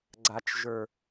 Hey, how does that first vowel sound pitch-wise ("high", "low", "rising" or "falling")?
low